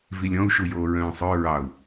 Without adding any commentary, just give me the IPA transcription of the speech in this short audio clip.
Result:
vilʲɔ̃u̯ʃujoː ɹœ̃ːsˤœ ɹɑu̯

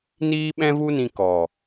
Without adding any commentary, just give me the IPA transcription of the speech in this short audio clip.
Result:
niː˦ɓɛ̃˦ vu˦nĩ˧ kɔ˨

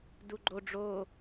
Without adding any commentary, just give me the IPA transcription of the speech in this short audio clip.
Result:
duɡ͡ǃo ɖ͡ʐo

